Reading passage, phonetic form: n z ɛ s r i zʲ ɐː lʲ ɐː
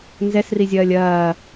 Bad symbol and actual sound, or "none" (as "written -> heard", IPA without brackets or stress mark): none